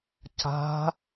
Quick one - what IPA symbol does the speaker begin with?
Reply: c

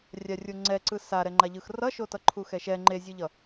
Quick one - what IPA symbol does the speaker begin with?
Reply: rʲ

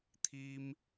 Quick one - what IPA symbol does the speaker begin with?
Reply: t̪ʰ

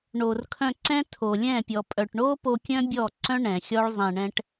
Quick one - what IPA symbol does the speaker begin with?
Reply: ɳ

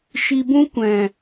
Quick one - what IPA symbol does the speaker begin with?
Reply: ʃ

